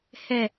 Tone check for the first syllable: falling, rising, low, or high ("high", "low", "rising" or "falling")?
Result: low